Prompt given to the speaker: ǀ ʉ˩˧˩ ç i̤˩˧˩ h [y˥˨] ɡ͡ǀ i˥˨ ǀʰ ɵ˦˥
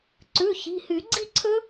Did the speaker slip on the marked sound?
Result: yes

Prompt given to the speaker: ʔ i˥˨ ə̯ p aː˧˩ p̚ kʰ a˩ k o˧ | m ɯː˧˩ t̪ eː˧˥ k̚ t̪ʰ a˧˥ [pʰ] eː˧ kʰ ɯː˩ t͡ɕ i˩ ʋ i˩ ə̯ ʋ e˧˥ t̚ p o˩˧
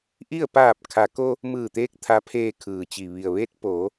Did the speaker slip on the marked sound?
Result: no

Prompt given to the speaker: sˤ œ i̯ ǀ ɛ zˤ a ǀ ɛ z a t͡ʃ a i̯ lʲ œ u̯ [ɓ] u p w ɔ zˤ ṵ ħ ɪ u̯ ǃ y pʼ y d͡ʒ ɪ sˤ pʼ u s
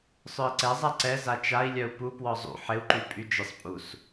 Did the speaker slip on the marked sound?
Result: yes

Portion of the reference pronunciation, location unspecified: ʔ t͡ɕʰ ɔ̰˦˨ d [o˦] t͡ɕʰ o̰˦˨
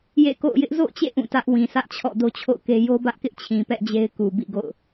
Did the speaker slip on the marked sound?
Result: no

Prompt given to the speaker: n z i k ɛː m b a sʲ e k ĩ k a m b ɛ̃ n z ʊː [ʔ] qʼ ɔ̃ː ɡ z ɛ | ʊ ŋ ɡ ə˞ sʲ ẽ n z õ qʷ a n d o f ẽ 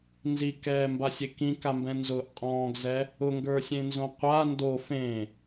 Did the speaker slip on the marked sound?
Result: no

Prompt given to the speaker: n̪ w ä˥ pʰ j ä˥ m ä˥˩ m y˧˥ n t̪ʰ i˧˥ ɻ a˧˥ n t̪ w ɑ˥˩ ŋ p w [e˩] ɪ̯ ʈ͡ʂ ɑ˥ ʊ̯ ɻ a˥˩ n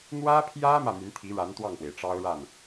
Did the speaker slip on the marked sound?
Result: no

